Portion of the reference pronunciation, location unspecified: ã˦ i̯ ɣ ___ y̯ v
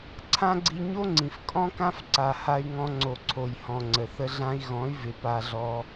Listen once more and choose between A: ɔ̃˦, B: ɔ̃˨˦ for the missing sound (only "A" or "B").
B